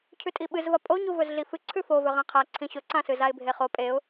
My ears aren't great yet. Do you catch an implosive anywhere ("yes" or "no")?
yes